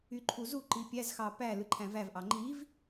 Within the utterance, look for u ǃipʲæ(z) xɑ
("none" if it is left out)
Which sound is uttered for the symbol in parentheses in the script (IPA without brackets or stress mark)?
z